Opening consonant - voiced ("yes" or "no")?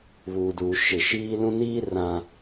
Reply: yes